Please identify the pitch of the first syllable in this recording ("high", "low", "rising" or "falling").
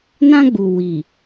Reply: high